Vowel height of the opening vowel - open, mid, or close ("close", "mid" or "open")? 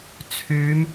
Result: close